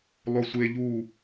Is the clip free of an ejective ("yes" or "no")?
yes